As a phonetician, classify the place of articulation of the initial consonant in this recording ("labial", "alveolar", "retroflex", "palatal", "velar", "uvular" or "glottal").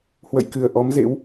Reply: glottal